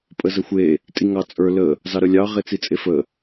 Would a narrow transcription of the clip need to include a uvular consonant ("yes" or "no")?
yes